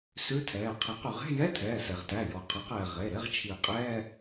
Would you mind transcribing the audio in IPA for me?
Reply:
s ʉ˧˥˧ tʰ ɛː˩˧˩ qʰ e˨˩˦ q ʉ˩ ʁ e̤˧˥˧ j ɛ˧˥˧ tʰ ɛː˩˧˩ s ɛ˩ ʁ t æ˩˧˩ j ɔ˩ qʰ ɛ˩˥ q ɛː˩ ʁ e˩˧˩ ɾ e˧˥˧ ʁ t͡ʃʰ i˨˩˦ qʼ ɛː˧˥˧

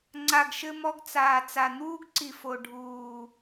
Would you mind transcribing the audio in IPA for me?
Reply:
ŋ͡ǀ a˨ ɡ ʃ ɘ˧ m ɔ˧ ɡ t͡s aː˨ t͡s a˨ n̪ uː˦ ɡ ǀ i˨ f o˨ ɖʱ uː˨

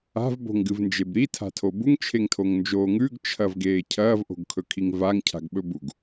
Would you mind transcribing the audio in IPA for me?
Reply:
a̤ v b o̤ ŋ ɡ ɨ v n d͡ʒ e b ɾ i tʰ a̤ tʰ o b u ŋ t͡ʃʰ e ŋ tʰ o ŋ n d͡ʒ oː ŋ ʉ ɡ t͡ʃʰ ɐ v ɡ eː cʰ ɐː v ʔ o̤ ɡ kʰ ɵ kʰ i ŋ v a ŋ cʰ a̤ ɡ ɓ ɵ b u ɡ

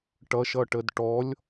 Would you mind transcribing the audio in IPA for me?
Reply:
ʈ ʌ ʃ ʌ ʈ ə d ʈ ɔ lʲ

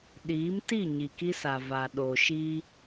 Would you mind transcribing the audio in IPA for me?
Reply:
ɗ iː˨˦ m t i˦˨ ɲ i˨ k i˦ s a˨ v a˨ ɗ o˨ ʃ i˦

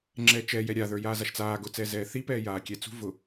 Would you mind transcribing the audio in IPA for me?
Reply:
ŋ͡ǁ ɛː t͡ʃ ɛ j ɛ ɾʲ a ð ə˞ j aː z a ʃ t͡s aː ɡ ʊ t͡s ɛː z ɛː θ i p ɛː j aː kʲ ɛ t͡s ṳ v ʊ

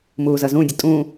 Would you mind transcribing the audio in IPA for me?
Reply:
m uː z ʌ z ũ dʲ ʌ tʼ ũ

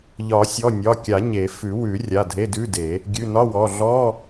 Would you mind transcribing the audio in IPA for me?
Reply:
ʎ ɒ˨˩˦ sʲ ɔ˩˧˩ nʲ ɒ˩˧˩ kʲ a˨˩˦ ɲ e˨˩˦ f ʉ˨˩˦ w ʉ˨˩˦ rʲ a˩˧˩ dʱ e˧˥˧ d ʉ˧˥˧ d e˨˩˦ | ɡʲ ʉ˩˧˩ n ɒ˧˥˧ w ɔ˩˧˩ ɮ ɔ˧˥˧

